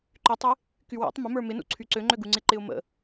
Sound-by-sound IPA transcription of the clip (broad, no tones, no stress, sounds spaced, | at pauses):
ǃ y tˤ ɪ | k y w ṵ tˤ m ə m ə˞ m ɪ n ṵ ǀʰ y ǀ ø ŋ͡ǃ ø ɡ u ŋ͡ǀ ɪ ǃ ɪ ʊ̯ m ə̰